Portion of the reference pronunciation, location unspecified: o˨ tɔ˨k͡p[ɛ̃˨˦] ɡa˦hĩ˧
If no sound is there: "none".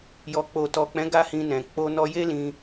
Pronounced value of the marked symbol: ɛ̃˨˦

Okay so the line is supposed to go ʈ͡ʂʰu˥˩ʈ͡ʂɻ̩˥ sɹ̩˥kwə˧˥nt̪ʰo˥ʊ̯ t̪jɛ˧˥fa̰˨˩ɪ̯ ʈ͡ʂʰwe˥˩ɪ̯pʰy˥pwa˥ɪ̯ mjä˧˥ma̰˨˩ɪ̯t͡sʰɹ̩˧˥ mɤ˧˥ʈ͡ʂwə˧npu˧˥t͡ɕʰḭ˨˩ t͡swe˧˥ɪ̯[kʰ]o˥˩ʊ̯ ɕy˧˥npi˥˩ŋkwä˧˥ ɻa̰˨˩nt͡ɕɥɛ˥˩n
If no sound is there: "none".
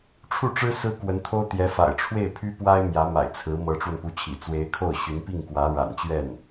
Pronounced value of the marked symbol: kʰ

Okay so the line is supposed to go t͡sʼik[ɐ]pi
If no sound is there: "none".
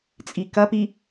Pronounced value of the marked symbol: ɐ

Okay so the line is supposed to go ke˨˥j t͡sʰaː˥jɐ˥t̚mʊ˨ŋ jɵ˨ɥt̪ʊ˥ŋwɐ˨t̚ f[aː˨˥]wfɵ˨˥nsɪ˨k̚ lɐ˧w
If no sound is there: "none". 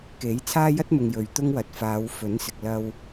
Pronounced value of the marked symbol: aː˨˧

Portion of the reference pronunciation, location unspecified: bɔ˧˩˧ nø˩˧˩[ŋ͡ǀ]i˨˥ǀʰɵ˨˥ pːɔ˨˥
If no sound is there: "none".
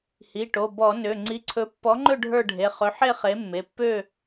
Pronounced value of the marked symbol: ŋ͡ǀ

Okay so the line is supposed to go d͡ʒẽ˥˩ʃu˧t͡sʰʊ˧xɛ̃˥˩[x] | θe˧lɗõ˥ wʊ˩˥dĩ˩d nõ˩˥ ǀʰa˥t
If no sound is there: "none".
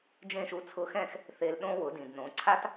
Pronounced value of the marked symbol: x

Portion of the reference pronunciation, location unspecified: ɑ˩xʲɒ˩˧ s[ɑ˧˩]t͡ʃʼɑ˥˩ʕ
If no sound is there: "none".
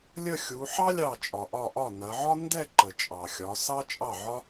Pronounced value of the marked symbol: ɑ˥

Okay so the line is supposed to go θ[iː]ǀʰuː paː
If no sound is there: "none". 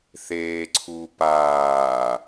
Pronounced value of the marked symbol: eː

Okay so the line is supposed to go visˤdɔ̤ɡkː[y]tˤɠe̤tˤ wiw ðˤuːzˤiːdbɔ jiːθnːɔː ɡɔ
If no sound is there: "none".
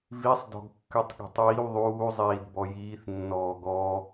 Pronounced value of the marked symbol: y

